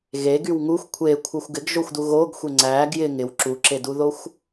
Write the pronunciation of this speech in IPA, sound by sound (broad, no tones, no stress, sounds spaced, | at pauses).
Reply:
ɣ e ɡ y w ŋ u xʷ kʷʰ e kʷʰ œ xʷ ɡ ɪ ɡ ʒ o xʷ d u ɣ o ɡ xʷ e ŋ͡ǀ æ ɡ j ɪ ŋ ɪ w ǁ u ǁ e d u ð o xʷ